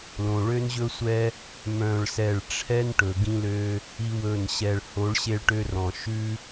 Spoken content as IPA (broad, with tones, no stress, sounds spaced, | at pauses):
l õ˨ ɭ ø˦ n ʑ ɵ˦ sʷ ɛ˦ | m œ̃˧ ɭ s ɛ˦˨ ɭ ʈ͡ʂʰ ɛ˦ n ʈ ɵ˨ ɡ ĩ˦ l ø˦ | i˦ w ɵ˦˨ n ɕ ɛ˧ ɭ h o˨˦ ɭ ɕ e˧ ɭ ʈ ø˧ r ɔ̃˨ ʃ ʉ˦